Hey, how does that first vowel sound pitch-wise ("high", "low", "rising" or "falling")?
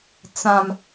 low